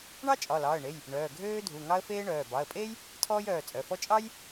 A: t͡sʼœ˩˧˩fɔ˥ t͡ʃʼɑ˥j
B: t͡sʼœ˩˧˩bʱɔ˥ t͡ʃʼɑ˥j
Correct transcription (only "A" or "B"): A